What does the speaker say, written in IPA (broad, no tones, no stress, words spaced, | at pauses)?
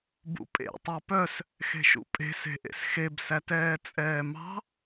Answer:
bṵpʼḛ tˤɑpœs | xe̤ʃṵpʼe̤s e̤ʔḛsxeb sætɛːt͡sʼɛːmɑ̤